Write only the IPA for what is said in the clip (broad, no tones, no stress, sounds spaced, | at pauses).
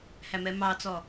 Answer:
h æ m ɛ m ɑ t͡s ɔ